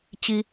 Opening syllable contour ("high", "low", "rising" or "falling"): high